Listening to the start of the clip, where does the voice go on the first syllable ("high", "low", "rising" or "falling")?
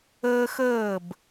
high